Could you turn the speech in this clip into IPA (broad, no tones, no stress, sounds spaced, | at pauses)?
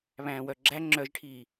β æ̃ː w œ ɡ͡ǁ æ ŋ͡ǁ œ ʒ ʈʰ iː